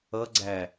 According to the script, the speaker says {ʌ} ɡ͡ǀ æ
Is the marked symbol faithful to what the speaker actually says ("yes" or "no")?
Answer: yes